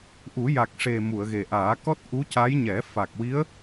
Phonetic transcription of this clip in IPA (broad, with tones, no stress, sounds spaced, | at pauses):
ʔ u˨˩˦ j a˨˩ k̚ ʂ e˨˩ m u˨˩˨ ə̯ ɣ e˨˩ ʔ aː˨˩˦ k ɔ˦˥ t̚ ʔ u˧˥ c a˧˥ j ɲ ɛ˨˩˦ f a˨˩ k̚ w i˧˥ ə̯